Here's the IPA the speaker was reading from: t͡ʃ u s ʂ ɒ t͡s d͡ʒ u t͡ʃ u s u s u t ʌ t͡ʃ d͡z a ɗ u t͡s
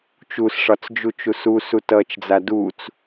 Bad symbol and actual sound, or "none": ɗ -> d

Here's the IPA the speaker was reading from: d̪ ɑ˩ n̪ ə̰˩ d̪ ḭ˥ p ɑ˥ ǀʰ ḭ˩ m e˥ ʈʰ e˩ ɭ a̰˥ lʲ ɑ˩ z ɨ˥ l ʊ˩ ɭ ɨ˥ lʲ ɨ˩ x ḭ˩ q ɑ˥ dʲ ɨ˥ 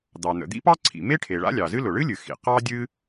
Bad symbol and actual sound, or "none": none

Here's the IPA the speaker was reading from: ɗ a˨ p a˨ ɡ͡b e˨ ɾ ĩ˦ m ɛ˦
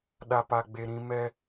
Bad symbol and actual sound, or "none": none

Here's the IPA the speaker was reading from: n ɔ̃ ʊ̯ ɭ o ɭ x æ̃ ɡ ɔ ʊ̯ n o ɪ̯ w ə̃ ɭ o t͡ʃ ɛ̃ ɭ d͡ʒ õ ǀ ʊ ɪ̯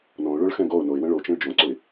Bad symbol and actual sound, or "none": æ̃ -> ɛ̃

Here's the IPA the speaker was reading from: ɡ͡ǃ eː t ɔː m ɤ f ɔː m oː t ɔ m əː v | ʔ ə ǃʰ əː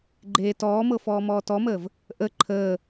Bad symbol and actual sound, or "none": oː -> ɔː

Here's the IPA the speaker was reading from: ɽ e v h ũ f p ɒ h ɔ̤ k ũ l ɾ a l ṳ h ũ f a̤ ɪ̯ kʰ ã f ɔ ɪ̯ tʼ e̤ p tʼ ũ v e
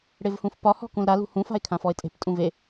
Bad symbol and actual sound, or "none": none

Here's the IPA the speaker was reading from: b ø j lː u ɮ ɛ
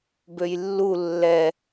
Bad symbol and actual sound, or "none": ɮ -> lː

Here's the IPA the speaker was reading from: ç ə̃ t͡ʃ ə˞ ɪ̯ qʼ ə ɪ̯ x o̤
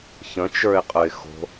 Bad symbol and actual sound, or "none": none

